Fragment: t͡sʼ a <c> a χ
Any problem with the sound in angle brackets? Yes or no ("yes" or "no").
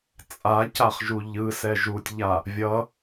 no